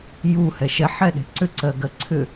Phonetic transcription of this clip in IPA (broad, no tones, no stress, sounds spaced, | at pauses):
j u h ɛ ʃ ɛ ħ ɛ ɗ e̤ ǀ ʏ ǀ ɜ ɡ ɜ ǀʰ ʏ